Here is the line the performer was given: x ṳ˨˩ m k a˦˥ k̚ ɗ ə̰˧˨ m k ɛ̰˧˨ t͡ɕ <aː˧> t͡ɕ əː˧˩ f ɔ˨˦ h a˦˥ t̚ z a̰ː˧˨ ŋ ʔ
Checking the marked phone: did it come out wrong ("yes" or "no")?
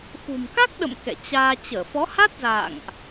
no